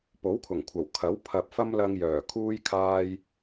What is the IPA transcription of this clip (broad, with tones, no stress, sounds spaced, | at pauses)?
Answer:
p o˨˥ w kʰ ʊ˨˩ ŋ kʷʰ ɐ˨˩ w kʰ ɐ˨˥ w pʰ ɐ˨ p̚ f ɐ˥ m l ɐ˧ ŋ j œː˨˩ kʰ uː˥ j kʰ aː˥ j